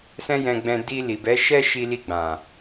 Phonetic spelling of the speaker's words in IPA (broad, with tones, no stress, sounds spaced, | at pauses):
s ɛ̃˦ j ɛ̃˧ ɡ͡b ɛ̃˧ d i˧ l i˨ b ɛ˨˦ ʃ ɛ˦ ʃ i˧ l i˧ ɡ͡b ã˨